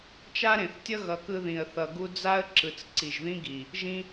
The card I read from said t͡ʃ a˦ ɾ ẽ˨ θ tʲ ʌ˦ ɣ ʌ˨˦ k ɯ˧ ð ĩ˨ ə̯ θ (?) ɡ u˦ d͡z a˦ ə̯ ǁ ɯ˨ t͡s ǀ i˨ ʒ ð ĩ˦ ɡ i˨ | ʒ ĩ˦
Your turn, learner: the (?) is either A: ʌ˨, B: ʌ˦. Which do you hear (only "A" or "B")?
A